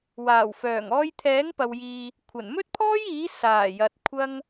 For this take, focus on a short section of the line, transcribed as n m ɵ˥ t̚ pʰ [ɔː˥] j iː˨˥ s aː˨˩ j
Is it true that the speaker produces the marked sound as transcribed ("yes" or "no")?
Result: yes